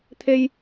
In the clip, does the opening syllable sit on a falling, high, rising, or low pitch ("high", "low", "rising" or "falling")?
low